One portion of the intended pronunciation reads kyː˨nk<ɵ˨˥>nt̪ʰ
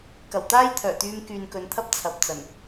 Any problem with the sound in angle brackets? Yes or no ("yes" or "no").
yes